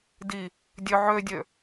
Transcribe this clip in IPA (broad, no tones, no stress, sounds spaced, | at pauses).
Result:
d i | dʲ ø ʕ ø dʲ ø